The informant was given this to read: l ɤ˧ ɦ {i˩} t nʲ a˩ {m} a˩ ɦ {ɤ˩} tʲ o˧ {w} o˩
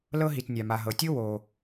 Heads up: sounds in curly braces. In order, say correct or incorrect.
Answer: correct, correct, correct, correct

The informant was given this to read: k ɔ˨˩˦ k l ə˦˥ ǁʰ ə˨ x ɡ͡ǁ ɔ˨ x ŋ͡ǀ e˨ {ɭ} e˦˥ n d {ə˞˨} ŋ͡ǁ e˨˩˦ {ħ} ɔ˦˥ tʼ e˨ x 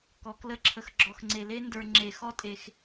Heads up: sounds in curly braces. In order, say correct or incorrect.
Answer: incorrect, correct, incorrect

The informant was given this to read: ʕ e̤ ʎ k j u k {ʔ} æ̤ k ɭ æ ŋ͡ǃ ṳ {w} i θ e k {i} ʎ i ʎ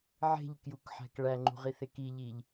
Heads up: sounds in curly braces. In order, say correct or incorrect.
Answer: incorrect, incorrect, correct

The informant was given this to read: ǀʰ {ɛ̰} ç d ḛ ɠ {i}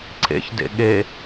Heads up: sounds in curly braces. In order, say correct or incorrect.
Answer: incorrect, incorrect

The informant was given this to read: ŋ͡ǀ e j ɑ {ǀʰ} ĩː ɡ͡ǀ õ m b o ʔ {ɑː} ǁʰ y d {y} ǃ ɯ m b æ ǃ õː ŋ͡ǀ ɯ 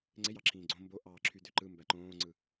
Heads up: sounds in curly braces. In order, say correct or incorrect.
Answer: incorrect, correct, incorrect

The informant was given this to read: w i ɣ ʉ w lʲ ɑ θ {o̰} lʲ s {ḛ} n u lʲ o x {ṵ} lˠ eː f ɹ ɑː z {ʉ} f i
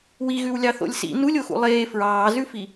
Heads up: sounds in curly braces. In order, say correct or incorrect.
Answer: correct, incorrect, correct, correct

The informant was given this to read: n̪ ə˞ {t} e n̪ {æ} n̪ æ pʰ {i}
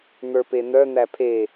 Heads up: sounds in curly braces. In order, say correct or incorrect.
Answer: incorrect, incorrect, incorrect

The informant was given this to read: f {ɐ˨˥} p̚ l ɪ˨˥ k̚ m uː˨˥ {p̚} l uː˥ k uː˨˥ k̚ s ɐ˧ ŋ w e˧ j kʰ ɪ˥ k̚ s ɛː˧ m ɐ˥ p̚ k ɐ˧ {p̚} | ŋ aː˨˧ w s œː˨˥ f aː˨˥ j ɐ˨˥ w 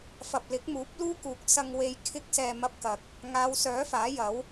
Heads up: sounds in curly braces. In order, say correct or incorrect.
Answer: incorrect, correct, incorrect

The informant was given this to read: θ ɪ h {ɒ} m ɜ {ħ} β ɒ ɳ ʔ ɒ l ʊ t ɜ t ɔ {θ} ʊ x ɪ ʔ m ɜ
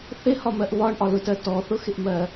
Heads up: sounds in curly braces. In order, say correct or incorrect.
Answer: correct, incorrect, correct

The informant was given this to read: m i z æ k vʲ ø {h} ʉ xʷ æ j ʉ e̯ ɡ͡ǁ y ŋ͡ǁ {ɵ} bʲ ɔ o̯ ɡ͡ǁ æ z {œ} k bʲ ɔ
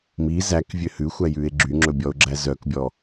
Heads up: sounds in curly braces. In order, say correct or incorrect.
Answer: correct, correct, correct

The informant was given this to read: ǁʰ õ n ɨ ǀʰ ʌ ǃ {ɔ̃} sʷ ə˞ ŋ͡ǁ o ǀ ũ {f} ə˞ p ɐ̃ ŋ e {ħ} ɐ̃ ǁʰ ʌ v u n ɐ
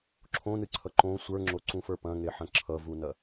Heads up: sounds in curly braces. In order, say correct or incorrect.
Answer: incorrect, correct, correct

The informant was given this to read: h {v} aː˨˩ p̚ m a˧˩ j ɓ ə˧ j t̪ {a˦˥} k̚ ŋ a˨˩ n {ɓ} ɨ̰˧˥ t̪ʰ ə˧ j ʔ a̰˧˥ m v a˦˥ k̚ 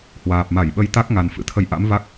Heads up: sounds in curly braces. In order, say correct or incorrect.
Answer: incorrect, correct, incorrect

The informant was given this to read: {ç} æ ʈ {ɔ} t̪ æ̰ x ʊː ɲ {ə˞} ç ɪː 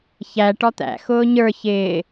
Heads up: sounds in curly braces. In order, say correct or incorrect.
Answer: correct, correct, correct

